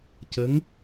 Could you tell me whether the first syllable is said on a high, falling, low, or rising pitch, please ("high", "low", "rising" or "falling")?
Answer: rising